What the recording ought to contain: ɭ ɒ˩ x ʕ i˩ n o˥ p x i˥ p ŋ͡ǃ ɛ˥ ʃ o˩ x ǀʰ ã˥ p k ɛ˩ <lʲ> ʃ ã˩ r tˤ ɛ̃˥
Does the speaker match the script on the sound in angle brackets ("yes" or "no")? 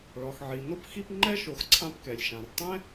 yes